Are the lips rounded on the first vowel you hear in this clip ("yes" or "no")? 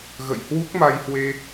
no